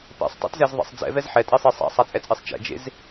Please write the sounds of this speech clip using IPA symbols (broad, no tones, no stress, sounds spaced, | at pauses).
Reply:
p ḛ sˤ tˤ ɛ̰ t z ɛ z ðˤ ḛ sˤ d͡z ɛ̰ v ɛ z ħ ɛ tʼ i sˤ e sˤ a̰ sˤ a t͡sʼ ɛ t͡sʼ i sˤ t͡ʃ ɛ̰ d͡ʒ ḛ z